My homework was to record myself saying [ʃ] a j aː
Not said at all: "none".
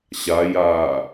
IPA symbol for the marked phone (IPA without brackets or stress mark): ɕ